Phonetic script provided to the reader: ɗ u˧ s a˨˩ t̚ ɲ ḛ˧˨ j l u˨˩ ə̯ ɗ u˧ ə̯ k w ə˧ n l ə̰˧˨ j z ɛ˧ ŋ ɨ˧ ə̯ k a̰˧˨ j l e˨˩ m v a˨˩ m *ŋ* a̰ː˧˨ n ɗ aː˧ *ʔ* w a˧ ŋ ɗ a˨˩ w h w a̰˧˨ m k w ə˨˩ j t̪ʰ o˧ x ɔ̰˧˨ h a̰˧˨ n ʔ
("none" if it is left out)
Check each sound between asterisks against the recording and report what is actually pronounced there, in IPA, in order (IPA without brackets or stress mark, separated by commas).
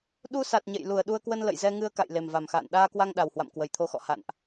x, k